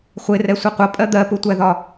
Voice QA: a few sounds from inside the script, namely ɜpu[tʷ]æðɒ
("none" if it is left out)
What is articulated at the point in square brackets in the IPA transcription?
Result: tʷ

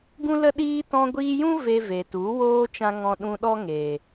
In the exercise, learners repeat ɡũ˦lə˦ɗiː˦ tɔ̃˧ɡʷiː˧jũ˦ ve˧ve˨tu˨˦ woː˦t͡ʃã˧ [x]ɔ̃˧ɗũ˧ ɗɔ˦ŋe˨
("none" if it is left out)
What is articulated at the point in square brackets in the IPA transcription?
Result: ŋ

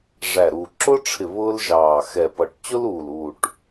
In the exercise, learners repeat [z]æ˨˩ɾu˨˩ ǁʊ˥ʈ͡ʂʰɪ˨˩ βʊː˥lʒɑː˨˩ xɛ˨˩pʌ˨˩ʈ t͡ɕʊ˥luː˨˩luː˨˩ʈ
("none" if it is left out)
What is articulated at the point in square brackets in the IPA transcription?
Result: ʐ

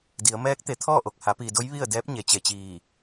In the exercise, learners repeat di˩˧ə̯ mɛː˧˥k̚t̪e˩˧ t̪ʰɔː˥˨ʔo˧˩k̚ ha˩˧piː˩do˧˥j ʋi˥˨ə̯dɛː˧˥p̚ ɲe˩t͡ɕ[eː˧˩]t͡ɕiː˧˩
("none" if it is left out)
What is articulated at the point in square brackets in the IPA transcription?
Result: e˧˩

